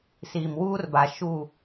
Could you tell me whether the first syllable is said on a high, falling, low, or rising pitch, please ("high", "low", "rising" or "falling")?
low